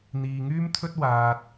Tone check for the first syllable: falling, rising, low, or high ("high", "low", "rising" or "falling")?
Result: low